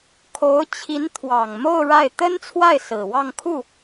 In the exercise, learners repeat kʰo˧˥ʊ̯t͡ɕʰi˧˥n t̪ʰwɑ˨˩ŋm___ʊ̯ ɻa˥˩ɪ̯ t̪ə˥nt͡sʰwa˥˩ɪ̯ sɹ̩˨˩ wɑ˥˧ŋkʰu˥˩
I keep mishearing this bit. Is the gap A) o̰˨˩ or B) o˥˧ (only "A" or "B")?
B